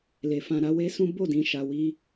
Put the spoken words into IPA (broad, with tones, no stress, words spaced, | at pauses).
le˨fã˧ɾa˦ we˦sũ˦ bo˦˨dĩ˨ ʃa˨ wi˧